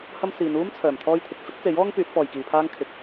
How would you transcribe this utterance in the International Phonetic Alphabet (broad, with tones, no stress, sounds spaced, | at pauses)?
h ɐ˥ m s iː˨˧ n uː˥ m t͡sʰ œː˨˩ m t̪ʰ ɔː˥ j t̪ʰ ɪ˨ k̚ f ɪ˥ k̚ t͡s e˨˥ j ɔː˥ ŋ p yː˨˥ t̚ p ɔː˨ j k iː˨ pʰ aː˥ ŋ kʰ ɪ˨ k̚